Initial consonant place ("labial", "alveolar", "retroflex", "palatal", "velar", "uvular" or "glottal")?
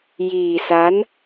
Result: palatal